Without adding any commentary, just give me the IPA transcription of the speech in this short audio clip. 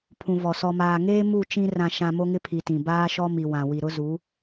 pʰ ũ˨ v ɔ˨ s ɔ˨ m aː˨ ŋ eː˦ m u˦˨ t͡ʃ ĩ˦ r ã˨ ʃ ã˨ m o˦ ŋ ɪ˦ pʰ i˨ t ĩ˨ b aː˦ ʃ ɔ˦ m i˨ w ã˨ w i˨ ɾ ʊ˦ z u˨˦

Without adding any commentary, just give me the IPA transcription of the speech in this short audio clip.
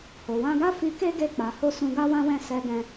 h o˨ w ã˧ ɡ a˦ f i˧ k e˦ ɡ e˧ k͡p a˨ h o˧ s ũ˧ ɡ a˦ w ã˦ w ɛ̃˦˨ s ɛ˧ ɡ ɛ̃˧

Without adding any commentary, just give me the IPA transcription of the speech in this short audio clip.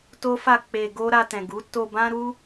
t o˦ f a˦˨ k͡p e˧ ɡ o˦ ɾ a˧ t ɛ̃˨ ɡ u˨˦ t o˧ b ã˦ ɾ u˦

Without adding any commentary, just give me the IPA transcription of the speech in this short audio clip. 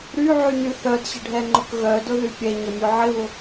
ɾ y ʕ y n y θ œ d ɕ ɪ ɖʱ ɛ ŋ͡ǃ ʊ k ɣ œ d ʊ ð y pʲ ɛ ɲ ə mʲ o ʕ ɪ β ʊ

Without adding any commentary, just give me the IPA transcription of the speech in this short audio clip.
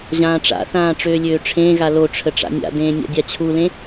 ʑ ãː ʈ͡ʂ a̰ θ ãː ʈ͡ʂ øː lʲ øː ʈ͡ʂʰ ẽː ɣ a l o ʈ͡ʂʰ ə ʈ͡ʂ a̰ nʲ a̰ d ẽː nʲ a̰ dʲ a t͡ɕʰ u l ẽ

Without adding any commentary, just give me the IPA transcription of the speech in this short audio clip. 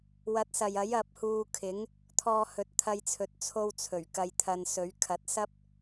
w ɐ˨˥ t̚ s ɐ˨ j ɐ˨˥ j ɐ˧ p̚ h uː˧ kʰ ɪ˨˥ ŋ | t̪ʰ ɔː˧ h ɵ˨ t̚ t̪ʰ ɐ˧ j t͡sʰ ɵ˨ t̚ t͡sʰ o˧ w t͡sʰ ɵ˨˩ ɥ k ɐ˧ j t̪ʰ ɐ˧ n s ɵ˨˥ ɥ kʰ ɐ˨˥ t̚ s ɐ˥ p̚

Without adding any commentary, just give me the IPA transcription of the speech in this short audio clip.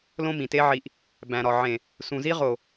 l õ˦ m ĩ˨ t e˦ ʕ i˧ ʔ | b æ̃˨ ɾ ɒ˨ ʕ ẽ˨ | s ũ˨ z i˦ ʁ o˨

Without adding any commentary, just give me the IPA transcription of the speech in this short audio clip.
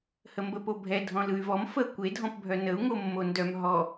h ə m b ə p o bʱ ɛ dʱ ɔ̃ l ɯ y̯ v ɔ m f ə kʷ e dʱ ɔ̃ p bʱ œ n ə u̯ ŋ o mː o n d œ m ɦ ɔ

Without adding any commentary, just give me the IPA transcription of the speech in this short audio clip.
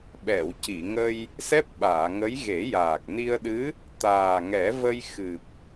ɓ ɛ˨˩˨ w c i˨˩˨ ŋ ə˧ j | s ɛ˦˥ p̚ ɓ aː˨˩˨ ŋ ə˧˥ j ɣ e˨˩˦ j aː˨˩ k̚ n i˧ ə̯ ɗ ɨ˧˥ | t̪ aː˨˩ ŋ ɛ˨˩˦ v ə˧ j x ɨ˨˩ p̚

